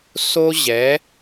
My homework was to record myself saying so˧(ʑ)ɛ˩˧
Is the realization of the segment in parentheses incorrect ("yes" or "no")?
no